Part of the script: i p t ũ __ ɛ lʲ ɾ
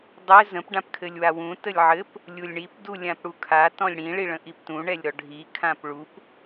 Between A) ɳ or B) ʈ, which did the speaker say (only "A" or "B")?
A